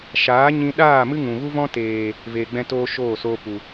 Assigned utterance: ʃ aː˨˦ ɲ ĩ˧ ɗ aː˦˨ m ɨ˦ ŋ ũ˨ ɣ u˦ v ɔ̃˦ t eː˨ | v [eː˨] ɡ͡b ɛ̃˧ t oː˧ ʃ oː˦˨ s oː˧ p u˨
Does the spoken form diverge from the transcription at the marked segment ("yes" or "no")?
no